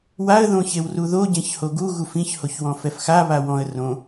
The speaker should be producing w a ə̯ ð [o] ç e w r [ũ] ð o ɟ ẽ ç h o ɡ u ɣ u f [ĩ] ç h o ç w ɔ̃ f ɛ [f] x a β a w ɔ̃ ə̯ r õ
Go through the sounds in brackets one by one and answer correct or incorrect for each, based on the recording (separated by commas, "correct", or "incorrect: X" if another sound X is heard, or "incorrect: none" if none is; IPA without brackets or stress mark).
incorrect: õ, incorrect: u, correct, correct